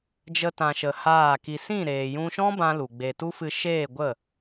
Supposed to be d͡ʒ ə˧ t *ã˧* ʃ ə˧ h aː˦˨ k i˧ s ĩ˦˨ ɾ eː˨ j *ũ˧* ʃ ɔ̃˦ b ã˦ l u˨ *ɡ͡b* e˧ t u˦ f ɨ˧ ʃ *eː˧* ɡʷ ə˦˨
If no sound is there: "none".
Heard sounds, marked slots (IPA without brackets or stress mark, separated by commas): ã˧, ũ˧, ɡ͡b, eː˦˨